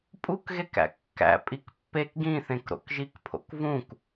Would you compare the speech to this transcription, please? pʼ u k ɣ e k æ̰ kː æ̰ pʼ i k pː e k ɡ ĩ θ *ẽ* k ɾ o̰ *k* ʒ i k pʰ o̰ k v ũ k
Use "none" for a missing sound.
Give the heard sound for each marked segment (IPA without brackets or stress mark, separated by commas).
ẽ, k